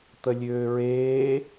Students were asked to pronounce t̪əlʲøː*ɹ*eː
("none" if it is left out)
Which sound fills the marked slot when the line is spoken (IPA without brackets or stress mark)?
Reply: ɹ